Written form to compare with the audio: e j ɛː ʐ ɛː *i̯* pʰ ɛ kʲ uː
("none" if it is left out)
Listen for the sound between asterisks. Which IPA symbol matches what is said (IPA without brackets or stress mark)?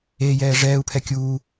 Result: u̯